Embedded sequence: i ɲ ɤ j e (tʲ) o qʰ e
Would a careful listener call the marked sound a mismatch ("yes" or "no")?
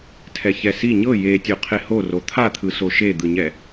no